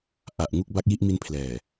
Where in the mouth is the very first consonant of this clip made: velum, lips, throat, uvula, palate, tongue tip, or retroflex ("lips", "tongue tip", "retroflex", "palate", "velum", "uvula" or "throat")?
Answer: throat